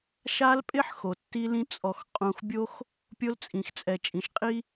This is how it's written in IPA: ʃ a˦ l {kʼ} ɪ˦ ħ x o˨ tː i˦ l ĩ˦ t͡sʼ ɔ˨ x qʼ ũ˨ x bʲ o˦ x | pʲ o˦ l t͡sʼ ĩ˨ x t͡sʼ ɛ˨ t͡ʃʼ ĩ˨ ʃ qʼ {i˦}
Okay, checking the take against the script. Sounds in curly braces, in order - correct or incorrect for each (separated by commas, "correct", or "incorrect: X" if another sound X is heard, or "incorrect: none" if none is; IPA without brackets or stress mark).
incorrect: pʼ, correct